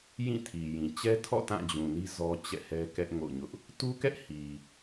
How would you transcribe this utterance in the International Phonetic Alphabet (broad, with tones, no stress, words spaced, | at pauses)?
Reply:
jĩ˦˨tʰi˨jĩ˨ t͡ɕɛ˦tʰɔ̰˦˨ tã˦˨d͡ʑũ˨ni˦ zɔ˦ t͡ɕɛ̰˦˨hɛ˦kɛ˦ʔ ŋo̰˦˨ʊ̯ɲʊ˦ʔ | tu˦kɛ˦ʔ hi˨